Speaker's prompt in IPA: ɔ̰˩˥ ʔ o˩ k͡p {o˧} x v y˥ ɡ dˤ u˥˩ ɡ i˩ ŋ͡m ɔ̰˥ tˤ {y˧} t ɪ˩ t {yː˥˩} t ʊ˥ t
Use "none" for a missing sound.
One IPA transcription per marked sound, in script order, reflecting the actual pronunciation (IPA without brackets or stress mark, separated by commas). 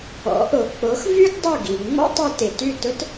o˩˥, y˧, y˥˩